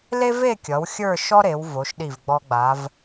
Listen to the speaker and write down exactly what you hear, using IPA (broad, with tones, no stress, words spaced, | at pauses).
le˥ve˥˧kʲʌ˩˧w xʲə˞˥˧ʃɔ˥ɾe˩˧w vo˩˧ʃɗi˧˩vɡ͡bɔ˧ ɡ͡ba˩˧v